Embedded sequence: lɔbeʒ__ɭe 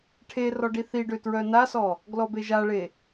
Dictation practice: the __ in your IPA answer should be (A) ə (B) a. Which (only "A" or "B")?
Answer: B